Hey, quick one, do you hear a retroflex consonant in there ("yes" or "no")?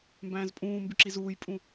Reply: no